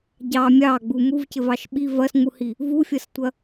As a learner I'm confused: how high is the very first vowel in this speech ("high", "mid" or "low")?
low